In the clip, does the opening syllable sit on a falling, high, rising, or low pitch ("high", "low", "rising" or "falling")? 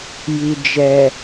low